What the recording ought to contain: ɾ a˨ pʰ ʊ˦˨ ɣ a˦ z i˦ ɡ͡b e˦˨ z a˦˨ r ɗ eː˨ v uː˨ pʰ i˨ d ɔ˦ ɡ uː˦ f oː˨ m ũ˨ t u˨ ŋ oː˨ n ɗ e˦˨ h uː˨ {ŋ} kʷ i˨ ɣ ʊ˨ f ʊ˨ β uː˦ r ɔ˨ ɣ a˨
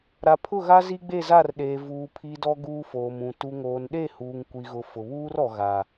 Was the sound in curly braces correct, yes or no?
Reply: yes